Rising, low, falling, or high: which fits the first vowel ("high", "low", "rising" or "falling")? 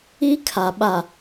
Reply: high